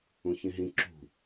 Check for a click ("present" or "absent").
present